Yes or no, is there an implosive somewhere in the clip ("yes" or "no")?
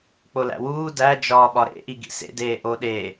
yes